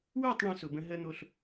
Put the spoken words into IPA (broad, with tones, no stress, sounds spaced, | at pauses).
w ə˞˦˨ tˤ ɳ õ˦ s ʊ˨ b ə̃˦ ɦ ə˦ n̪ o˦ ɬ